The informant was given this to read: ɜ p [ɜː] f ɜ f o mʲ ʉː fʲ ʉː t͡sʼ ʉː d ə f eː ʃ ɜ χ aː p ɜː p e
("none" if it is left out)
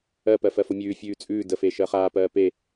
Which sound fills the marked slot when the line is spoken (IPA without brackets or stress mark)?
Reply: ɜ